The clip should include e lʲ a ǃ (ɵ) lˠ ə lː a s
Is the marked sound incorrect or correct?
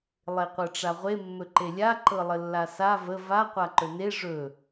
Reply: incorrect